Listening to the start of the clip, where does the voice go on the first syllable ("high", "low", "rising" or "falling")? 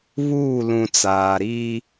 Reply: falling